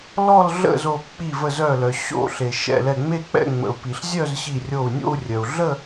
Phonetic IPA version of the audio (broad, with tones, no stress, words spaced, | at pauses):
lɔ˥˧l ɮə̰˥˧zo˧˩ k͡pi˧˩və˧˩zœ˧˩lœ˩ ɕo̰˥˧ ɬe˩ ʃɛ̰˧˩lɛ˧˩ŋ͡me˥˧k͡pɛ̰˥˧ ŋ͡mə̰˩u̯pi˩ɬ zʲœ˥˧zɕi˧˩rʲo˧˩u̯nʲo̰˥˧u̯ rʲœ˩u̯ɮə˥˧